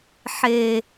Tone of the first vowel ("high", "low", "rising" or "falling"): low